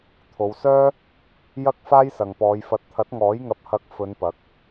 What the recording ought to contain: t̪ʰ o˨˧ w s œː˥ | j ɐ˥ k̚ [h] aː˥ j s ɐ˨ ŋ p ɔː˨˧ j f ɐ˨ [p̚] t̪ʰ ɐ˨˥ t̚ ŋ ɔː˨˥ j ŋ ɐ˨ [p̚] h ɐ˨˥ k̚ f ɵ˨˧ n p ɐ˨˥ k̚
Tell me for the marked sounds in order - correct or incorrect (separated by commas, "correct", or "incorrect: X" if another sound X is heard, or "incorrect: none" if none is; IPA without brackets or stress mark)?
incorrect: f, incorrect: t̚, correct